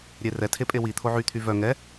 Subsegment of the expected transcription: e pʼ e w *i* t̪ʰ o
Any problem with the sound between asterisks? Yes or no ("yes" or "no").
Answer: no